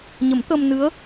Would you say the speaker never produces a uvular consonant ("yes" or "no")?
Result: yes